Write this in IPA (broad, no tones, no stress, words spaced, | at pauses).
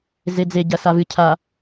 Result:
zed͡ze ɟɐsavɨ cʰa